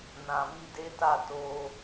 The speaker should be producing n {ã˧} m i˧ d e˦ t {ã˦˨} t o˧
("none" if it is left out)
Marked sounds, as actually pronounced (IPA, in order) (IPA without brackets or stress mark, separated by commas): ã˨, a˦˨